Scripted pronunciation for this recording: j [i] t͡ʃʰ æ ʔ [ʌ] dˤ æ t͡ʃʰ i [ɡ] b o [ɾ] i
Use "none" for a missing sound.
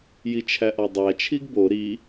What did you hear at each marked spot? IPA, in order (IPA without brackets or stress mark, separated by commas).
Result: i, ɒ, ɡ, ɾ